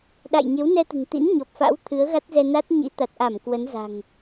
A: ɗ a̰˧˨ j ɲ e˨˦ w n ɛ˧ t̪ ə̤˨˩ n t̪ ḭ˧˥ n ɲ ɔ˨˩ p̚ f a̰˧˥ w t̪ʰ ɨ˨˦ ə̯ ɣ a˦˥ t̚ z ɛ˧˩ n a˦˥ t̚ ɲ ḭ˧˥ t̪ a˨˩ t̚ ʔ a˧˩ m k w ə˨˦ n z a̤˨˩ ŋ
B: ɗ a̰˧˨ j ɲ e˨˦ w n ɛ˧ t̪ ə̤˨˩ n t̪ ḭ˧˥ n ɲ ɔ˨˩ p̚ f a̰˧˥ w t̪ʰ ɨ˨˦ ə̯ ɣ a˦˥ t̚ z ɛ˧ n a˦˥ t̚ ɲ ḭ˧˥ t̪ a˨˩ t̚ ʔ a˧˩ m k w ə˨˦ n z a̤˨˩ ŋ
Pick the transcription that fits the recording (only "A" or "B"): B